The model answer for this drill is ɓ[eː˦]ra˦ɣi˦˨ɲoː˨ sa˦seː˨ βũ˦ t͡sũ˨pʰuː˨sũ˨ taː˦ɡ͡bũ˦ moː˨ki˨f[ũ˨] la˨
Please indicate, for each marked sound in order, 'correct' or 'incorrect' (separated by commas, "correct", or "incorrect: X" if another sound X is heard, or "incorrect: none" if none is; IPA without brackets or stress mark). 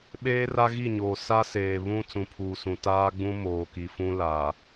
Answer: correct, incorrect: ũ˦